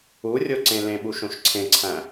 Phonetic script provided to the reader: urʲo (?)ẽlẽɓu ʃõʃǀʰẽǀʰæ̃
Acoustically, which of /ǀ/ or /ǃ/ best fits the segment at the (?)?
ǀ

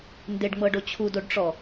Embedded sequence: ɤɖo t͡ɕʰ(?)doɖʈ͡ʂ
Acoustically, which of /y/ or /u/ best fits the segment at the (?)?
u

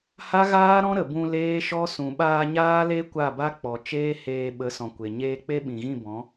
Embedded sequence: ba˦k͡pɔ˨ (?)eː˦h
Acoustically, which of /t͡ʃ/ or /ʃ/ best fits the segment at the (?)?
t͡ʃ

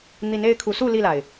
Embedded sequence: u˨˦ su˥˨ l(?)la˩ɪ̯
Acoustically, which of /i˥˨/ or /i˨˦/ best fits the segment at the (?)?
i˥˨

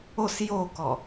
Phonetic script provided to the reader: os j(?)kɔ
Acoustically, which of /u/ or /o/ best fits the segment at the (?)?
o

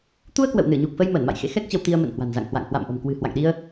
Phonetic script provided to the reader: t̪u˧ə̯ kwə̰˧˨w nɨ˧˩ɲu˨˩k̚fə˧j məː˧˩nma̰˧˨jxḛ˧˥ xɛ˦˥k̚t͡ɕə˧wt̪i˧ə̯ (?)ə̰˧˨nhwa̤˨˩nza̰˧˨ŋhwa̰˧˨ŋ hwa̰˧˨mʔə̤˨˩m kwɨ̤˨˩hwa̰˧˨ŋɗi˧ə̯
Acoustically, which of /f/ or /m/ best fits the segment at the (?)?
m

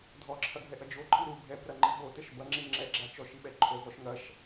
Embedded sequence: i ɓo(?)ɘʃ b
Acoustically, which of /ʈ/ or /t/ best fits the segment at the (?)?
t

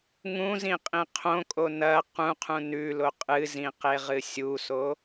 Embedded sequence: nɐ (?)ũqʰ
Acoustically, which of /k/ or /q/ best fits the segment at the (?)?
q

